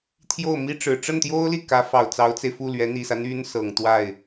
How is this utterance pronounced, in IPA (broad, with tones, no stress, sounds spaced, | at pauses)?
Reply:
t̪ʰ j o˥˩ ʊ̯ m i˥ ʈ͡ʂ ɻ̩˨˩ ʈ͡ʂ ə˥˩ n t̪ j o˥ ʊ̯ l i˥˩ k ä˧˥ f ɑ˨˩ ʊ̯ t͡s ɑ˧˥ ʊ̯ t͡s e˧ ɪ̯ f u˥˩ l ɥ ɛ˧˥ n̪ i˨˩ s ä˦ n̪ y˥ n s ɤ˨˩ ŋ t̪ w a˥˩ ɪ̯